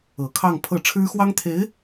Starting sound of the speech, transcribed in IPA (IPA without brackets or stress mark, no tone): ɤ